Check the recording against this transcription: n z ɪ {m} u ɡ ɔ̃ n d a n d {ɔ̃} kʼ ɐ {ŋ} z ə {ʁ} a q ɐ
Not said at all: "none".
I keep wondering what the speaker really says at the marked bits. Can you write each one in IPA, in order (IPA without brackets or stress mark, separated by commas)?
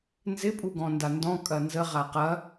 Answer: pʼ, ɔ̃, n, ʁ